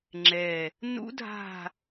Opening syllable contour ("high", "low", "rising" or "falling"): low